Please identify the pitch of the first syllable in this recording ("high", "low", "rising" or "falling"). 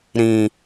low